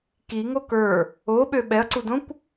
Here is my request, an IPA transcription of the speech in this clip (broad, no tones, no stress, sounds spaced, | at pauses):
k i ŋ o k ə˞ | o ɓ ø ɓ ɛ ɐ̯ ǀ u d õ kʷ